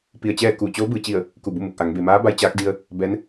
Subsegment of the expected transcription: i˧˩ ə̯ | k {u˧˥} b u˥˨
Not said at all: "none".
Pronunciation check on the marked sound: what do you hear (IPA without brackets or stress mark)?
u˧˩